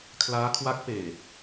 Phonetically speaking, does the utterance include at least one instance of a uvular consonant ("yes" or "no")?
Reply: no